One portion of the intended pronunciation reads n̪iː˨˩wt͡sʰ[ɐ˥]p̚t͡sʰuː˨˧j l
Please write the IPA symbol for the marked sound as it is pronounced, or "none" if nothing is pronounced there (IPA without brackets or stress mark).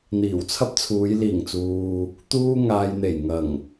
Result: ɐ˥